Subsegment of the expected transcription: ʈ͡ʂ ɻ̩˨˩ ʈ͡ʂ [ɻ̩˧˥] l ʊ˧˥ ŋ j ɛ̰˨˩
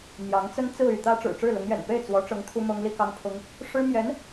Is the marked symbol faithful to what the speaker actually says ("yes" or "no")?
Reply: no